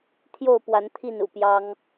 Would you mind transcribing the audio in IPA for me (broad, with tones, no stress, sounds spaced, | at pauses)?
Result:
t̪ʰ j o˥˨ ʊ̯ p w a˨˦ n t̪ʰ i˥˨ n ṵ˨˩ p j ɑ˦ ŋ